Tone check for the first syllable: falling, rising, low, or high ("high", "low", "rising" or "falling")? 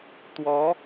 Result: rising